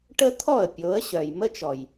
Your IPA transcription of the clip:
ʈə˦t̪ʰɔ˦˨ə̯ pʲo˨˦ə̯ɕœ˨j mə˦t͡ʃɔ˨j

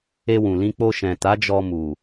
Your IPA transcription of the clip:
e˧wũ˨lĩ˧ k͡po˧ʃɛ̃˨ta˨˦ d͡ʒɔ˧mu˨

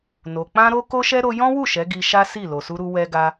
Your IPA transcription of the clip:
no˧ k͡pã˦ɾo˦ ko˦ʃɛ˦ ɾo˧ jɔ̃˦wu˦˨ ʃɛ˨˦ɡi˧ʃa˦ si˦˨lo˨ su˧ɾu˧ wɛ˧ɡa˧

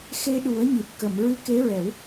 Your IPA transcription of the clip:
xe˧ɗu˨˩˦ə̯ɲi˨˩t̚ kə˨˩˨mɹɨ˧˥ ke˧˥ɹɛ˨˩˦w

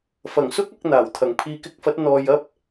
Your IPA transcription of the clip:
fɐ˨˩ŋsʊ˥k̚ɐ˧k̚ n̪aː˨˩wt̪ʰɐ˨˩ŋ pʰiː˨˧kɪ˧k̚fɐ˨˥t̚ n̪ɔː˨jɐ˥p̚

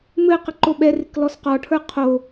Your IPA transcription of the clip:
mɘqə ǃoɓɛrɪk lɔsqɔʈʰə˞ qʰo

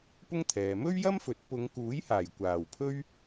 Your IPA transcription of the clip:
pʊ˥ŋt̪ʰɛː˨ mɵ˥ɥjɐ˥mfɵ˨˥t̚ pʊ˨˧ŋkuː˨˥jhaː˨˩j kʷaː˨˩wpʰɵ˥ɥ

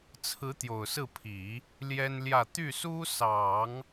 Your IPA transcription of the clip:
t͡sʰɹ̩˧˥t̪jo˨˩ʊ̯sɹ̩˥˩pʰi˨˩˦ | ljɛ˥nljä˥˧ t̪y˥˩su˥sɑ˨˩˦ŋ

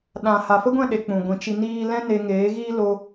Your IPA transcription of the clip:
ɗã˨ ha˨fə˦ɡʷɛ̃˦˨ɗe˨ k͡pũ˨ɡʷĩ˧ t͡ʃi˧niː˦ lɛ̃˦ne˧ŋeː˨˦ ɣiː˦lo˧

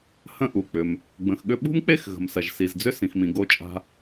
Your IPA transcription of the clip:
hə̃˧ʔu˩k͡pʏ˩m | ɡ͡bə̃˩xɠʏ˧ɓṳ˥mk͡pe˥x ɣə̤˩msɐ˩ʒsi˩zd͡zʏ˥ sĩ˩xmĩ˩ ɡo˧t͡ʃʼa̤˧

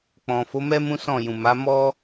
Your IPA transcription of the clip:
k͡pɔ̃˨fo˨˦mɛ˦ mũ˦sɔ̃˦˨ jũ˨ma˨˦ mɔ˦

